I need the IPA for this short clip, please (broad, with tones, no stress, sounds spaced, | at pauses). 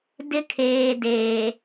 d ɪ˦ kʰ eː˨ d eː˨